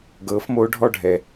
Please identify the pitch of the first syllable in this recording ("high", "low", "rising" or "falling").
rising